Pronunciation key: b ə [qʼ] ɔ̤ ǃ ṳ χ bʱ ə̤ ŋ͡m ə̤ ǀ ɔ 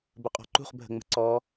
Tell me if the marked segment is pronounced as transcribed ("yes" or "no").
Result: yes